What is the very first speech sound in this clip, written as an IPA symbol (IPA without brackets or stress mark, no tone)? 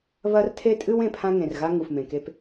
β